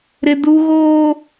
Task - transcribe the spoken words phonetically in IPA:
ɾ ɪ˦ d u˦ ɣ oː˦

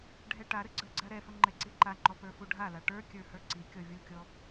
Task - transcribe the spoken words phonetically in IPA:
ɖʱ ɛ ʈ a ɾ ə ɡ͡ǀ ə˞ ɡ͡ǀ a ɾ ɛ f ə ŋ͡ǃ ɛ ǀ i ǃ a ŋ͡ǃ ɔ p ə˞ f u ɖʱ a l a ʈ ə˞ kʲ ə˞ h ə˞ ǀ i kʲ ɔ vʲ u kʲ ɔ

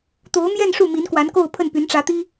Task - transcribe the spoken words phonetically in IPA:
t̪ o˧˥ ʊ̯ m j ɛ˥˧ n ʂ u˥˩ m i˧˥ n k w a˧˥ n k o˥˧ ʊ̯ pʰ ə˥˩ n p y˧˥ n ʈ͡ʂ ä˧˥ t̪ i˥

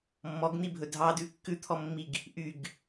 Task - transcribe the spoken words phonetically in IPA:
mː ɔ ɡ n̪ i bʱ ɵ dʱ ɑ d ʉ kː ʉ t̪ʰ ɔ mː i ɡ | ʔ y ɡ

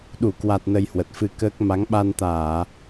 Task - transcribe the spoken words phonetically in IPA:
ɗ u˧˩ k w a˨˩ t̚ n ə˧ j h w ə˨˩ t̚ f ɨ˧ k əː˦˥ k̚ m a˨˦ ŋ ɓ a˧ n t̪ aː˧˩˨

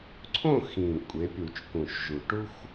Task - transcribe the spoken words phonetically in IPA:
ǀʰ õ˥˨ x ĩ˨˩ kʷʼ e˩˥ pʲ u˨˩˦ t͡ʃ k ũ˨˩ ʃ ʒ u˨˩˦ ʈ u˦ xʷ

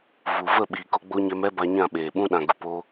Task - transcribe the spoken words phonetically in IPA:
v u˨ v ə˦˨ ɓ iː˨ k o˧ ɡ͡b o˧ ɲ ɛ˧ m ɛ˦ b a˧ ɲ ã˦˨ ɓ eː˨ ɓ ũ˧ ɗ ã˨ ɡ u˨ p oː˧

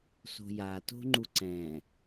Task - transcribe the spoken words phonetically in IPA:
s o̤ j a t o̤ ŋ͡ǃ u ǀ ɛ̃

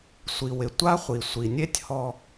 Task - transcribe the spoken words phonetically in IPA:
sʷ i˩ w ɪ˩ tʷ a˥ χʷ i˩ sʷ i˩ nʲ e˥ tʲ h ɔ˧

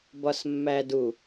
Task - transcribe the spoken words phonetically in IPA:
b ɒ s mː æ d u

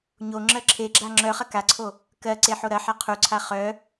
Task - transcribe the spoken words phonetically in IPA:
ɲ o ŋ͡ǁ ɜ ǁʰ e ɡ͡ǁ a ŋ͡ǁ œ χ ɐ k a ǀʰ o | k ɜ ǀ e ħ o ɾ ɐ ħ a qʰ u ǀʰ a χ œ

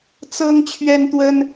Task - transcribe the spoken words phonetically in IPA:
t͡s ɤ˦ ŋ t͡ɕʰ ɥ ɛ˦ n t̪ w ə˦ n

